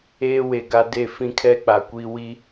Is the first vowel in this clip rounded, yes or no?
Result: no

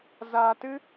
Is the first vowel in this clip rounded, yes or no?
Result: no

